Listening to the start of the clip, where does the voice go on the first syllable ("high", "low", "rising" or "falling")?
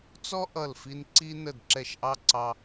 high